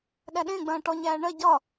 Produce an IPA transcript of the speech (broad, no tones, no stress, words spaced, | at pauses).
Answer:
ɗæɗẽ ɡ͡bɐ̃ːʈɔ ɲæːɳɜ ɟɒ